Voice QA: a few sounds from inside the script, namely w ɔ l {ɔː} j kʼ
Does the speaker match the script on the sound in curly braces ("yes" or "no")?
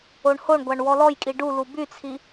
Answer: no